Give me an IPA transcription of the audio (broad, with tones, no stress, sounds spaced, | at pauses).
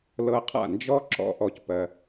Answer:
l ɤ˧ qʰ a̰˦˨ n d͡ʒ ɔ˦ ǁ ɔ̰˦ ʔ ɔ˧ c p ɜ˧